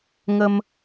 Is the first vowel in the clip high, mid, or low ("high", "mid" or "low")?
mid